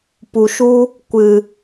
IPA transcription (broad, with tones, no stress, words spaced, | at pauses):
pu˨ʃu˦ | kʷɨ˨